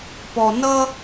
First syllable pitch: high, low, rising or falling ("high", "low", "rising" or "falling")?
low